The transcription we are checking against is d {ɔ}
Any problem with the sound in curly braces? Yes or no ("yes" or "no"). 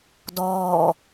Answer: yes